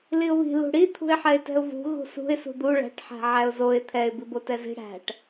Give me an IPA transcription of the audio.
liʊ̯βi̤ lṳɽi t̪ʰṳɪ̯ħɛɪ̯tɛ̤ʊ̯vṳ ɣṳsṳɪ̯ sṳd̪u ɭæ̤ʈ ħæ̤ʕæʊ̯zoɪ̯ t̪ʰɛɪ̯ bibotɛzi̤ ɽæ̤ʈ

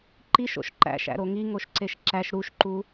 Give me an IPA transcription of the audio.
ǃiʃo̰ʃ ǃæ̰ʃæ̰ɾo ŋiŋoʃǀeʃ ǁæʃ ɾuʃǃu

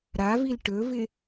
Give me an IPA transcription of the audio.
ɾavil ʈɵvɪ

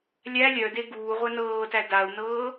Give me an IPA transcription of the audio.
lʲæ lʲœde ɡuːʁʷɛ nɤːtæ dau̯nɤː

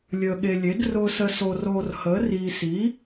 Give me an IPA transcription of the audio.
lʲəː˧ɠe˧lʲe˨˥d rʊː˧sə˧ so˧roː˧r həː˨˥riː˧ si˨˥

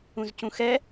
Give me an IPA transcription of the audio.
ũzcũxɛ

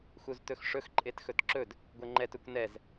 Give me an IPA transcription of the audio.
xuztɵxʂɵx ǃʼetxɵtǁɵd | ɡʷɛŋ͡ǃɛt ɵkʷnɛz

